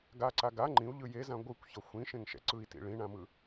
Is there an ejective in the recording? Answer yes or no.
no